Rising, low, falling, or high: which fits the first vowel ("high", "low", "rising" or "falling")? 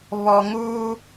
low